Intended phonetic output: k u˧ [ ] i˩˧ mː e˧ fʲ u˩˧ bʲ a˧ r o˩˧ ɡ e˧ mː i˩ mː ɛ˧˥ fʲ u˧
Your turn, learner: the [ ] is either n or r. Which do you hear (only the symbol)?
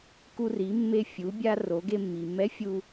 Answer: r